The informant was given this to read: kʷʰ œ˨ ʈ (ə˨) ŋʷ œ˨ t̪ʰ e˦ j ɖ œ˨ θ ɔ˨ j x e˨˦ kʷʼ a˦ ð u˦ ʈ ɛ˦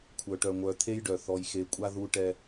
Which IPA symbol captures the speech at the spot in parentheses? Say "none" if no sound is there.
œ˨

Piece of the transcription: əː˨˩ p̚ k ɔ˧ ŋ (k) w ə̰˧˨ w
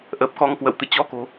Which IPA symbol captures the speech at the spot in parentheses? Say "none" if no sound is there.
k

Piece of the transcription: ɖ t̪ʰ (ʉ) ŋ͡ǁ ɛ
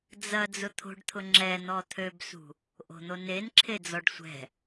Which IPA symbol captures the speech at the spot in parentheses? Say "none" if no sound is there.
ʊ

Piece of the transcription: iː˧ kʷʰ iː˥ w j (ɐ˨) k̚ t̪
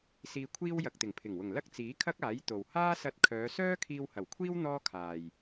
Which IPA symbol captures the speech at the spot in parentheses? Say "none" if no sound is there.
ɐ˨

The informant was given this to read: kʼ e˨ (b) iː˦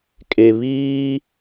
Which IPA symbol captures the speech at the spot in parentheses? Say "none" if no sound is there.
β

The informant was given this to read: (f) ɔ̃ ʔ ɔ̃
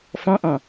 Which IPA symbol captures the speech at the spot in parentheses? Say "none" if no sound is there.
f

